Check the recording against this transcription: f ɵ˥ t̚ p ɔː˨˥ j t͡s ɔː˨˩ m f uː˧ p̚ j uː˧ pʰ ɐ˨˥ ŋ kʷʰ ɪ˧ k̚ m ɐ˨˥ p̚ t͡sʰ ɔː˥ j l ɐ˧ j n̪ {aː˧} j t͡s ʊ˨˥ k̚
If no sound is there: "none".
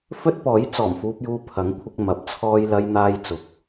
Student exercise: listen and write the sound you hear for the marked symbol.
aː˧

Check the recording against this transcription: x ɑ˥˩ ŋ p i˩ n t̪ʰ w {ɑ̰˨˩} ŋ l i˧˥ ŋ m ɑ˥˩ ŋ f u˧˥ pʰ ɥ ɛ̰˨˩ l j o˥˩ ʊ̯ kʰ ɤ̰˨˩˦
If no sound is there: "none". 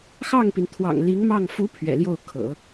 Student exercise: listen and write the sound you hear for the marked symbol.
ɑ̰˨˩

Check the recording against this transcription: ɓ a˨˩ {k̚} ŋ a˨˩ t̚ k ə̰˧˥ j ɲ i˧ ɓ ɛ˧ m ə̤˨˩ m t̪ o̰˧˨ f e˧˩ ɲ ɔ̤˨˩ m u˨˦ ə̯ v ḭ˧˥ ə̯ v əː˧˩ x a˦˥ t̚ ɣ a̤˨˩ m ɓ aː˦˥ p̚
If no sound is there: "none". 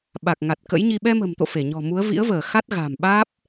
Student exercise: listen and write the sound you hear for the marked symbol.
k̚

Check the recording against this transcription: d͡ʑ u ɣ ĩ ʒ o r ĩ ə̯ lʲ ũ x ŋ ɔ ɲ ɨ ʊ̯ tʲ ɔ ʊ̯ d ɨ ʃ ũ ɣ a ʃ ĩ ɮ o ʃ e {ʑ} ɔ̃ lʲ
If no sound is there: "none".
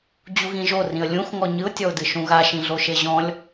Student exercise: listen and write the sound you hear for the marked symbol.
ʑ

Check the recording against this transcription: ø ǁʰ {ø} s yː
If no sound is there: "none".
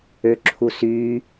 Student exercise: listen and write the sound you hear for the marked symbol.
u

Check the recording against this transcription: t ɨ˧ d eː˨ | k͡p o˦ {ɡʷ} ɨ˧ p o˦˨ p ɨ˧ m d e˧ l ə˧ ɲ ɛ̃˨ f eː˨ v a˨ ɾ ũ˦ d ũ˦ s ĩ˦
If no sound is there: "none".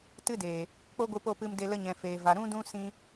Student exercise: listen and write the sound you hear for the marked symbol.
ɡʷ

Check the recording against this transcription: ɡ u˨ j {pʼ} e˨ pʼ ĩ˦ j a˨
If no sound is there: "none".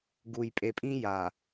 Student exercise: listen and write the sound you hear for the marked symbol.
pʼ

